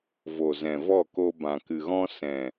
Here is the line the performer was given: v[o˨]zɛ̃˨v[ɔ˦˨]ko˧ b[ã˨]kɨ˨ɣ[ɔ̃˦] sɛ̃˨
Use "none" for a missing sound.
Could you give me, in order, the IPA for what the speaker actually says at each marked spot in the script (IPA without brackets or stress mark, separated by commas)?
o˨, ɔ˦˨, ã˨, ɔ̃˦